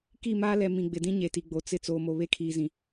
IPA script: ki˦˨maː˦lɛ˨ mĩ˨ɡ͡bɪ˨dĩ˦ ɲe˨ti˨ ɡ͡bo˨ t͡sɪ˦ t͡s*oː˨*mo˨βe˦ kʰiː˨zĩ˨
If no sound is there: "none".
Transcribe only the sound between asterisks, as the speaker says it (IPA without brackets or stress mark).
oː˨